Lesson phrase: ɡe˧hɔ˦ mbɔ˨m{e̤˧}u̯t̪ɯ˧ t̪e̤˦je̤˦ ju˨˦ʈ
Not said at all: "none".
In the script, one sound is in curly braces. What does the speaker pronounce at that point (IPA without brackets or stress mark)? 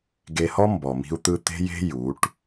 i̤˧